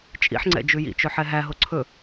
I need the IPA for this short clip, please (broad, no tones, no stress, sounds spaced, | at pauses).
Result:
t͡ʃʼ ḭ ħ ŋ͡ǀ ɛ̰ d͡ʒ ʉ j ḭ t͡ʃ ɵ ħ ɛ ɦ æ ɦ o ǀʰ ɵ